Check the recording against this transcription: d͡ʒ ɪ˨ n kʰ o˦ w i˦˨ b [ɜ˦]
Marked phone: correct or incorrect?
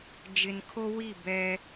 incorrect: ɛ˦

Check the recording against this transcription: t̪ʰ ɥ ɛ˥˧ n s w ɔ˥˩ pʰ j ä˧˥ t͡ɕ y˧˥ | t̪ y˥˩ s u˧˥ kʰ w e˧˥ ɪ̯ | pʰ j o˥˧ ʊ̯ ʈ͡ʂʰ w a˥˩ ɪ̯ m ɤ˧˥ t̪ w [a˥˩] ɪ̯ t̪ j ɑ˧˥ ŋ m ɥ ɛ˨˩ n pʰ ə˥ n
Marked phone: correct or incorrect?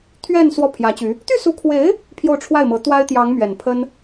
incorrect: a˥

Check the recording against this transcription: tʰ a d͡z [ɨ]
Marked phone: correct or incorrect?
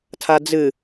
correct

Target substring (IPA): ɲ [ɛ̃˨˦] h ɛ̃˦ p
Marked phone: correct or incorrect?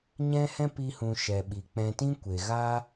incorrect: ɛ̃˦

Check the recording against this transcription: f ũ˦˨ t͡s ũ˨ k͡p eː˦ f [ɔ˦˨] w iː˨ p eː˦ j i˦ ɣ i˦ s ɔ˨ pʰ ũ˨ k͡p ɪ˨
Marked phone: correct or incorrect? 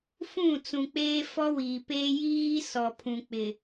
incorrect: ɔ˦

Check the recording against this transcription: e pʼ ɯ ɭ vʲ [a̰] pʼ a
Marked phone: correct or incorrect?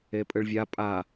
incorrect: a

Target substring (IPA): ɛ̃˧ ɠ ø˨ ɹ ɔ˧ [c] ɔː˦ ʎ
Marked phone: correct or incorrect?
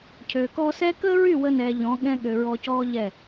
correct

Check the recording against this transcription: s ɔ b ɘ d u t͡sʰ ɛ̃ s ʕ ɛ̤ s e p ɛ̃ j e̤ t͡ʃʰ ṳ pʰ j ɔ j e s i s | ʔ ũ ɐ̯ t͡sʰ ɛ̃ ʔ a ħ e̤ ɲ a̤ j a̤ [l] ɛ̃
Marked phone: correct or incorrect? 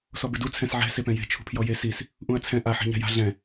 incorrect: ɮ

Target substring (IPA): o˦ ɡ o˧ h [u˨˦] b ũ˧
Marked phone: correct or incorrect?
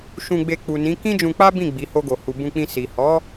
incorrect: u˨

